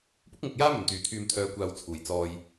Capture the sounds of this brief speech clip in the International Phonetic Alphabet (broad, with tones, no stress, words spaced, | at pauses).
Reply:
pʊ˥k̚ŋʊ˨k̚jaː˥ mɵ˨˩nt̪yː˨˩t̪ʰyː˨m t̪ʰœː˨˧kʷaː˨w t͡sʰuː˨˩j t͡sɔː˧j